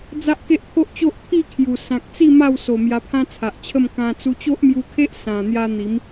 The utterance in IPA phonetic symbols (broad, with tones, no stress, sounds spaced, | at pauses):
d͡z a˦ ʔ k e˦ ʔ t̪ʰ o˦ ʔ t͡ɕ o˦ ʔ pʰ i˥˧ kʰ j u˨˩ s ã˨ k̚ t͡s i˥˧ m a˥˧ w s o˨˩ m j a˧ pʰ ã˦ t͡sʰ a˨ ʔ t͡ɕʰ ə˥˧ m k ã˧ t͡s u˧ t͡ɕ o˦ ʔ m j u˧ kʰ e˦ ʔ s ã˨˩ n̪ j a˧ n̪ i˨˦ m